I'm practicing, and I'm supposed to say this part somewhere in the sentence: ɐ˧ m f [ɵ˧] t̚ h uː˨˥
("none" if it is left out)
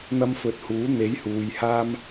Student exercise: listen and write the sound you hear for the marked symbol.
ɵ˨˥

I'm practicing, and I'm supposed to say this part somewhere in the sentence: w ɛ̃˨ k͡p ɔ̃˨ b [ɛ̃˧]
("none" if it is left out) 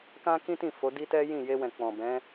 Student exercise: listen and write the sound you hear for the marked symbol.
ɛ̃˨˦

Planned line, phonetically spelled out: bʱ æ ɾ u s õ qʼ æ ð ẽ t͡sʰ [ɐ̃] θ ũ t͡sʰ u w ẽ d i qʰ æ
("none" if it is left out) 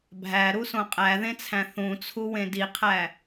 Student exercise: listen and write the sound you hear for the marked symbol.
æ̃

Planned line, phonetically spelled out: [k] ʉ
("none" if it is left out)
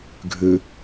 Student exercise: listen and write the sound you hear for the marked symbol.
ɡʱ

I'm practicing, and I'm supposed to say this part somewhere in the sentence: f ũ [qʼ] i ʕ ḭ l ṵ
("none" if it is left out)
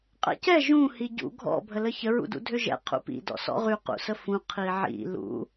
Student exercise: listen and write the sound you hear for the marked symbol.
qʰ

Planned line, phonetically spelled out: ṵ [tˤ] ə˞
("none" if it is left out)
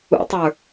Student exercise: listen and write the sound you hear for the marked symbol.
tˤ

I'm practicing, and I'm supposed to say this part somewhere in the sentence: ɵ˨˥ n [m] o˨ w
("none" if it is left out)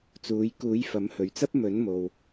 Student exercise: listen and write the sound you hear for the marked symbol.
m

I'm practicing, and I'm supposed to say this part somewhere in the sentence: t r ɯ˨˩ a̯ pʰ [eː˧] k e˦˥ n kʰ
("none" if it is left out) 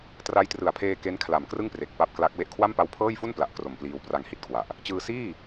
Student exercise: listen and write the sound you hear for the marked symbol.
eː˧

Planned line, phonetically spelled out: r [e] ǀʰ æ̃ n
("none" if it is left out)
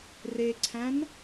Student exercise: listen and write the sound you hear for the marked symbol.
e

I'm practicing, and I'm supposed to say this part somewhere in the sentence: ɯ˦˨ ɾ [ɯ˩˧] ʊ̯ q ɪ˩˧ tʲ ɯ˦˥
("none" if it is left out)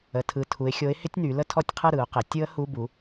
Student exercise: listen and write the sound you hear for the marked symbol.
ɯ˩˧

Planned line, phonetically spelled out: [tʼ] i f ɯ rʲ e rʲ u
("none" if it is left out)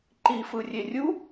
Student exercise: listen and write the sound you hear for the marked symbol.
ǃ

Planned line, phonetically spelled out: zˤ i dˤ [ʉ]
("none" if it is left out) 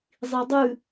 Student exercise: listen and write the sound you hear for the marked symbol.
ʉ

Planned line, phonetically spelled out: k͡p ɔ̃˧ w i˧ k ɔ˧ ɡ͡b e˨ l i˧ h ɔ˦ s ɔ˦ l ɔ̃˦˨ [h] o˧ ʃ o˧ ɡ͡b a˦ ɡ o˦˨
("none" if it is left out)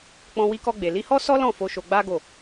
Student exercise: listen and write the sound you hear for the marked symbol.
f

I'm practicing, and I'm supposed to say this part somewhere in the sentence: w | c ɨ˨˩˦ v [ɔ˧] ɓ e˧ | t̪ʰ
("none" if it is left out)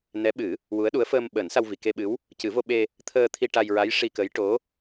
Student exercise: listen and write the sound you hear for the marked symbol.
o˧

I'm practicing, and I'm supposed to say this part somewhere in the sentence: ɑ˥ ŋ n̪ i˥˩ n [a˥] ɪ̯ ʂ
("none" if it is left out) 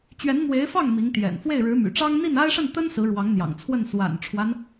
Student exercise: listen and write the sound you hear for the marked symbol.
a˥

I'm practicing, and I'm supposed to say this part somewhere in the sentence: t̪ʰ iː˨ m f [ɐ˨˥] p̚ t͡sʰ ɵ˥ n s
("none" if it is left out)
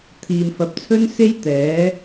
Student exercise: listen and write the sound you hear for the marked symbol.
ɐ˨˥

